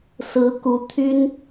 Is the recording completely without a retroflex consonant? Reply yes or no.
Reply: yes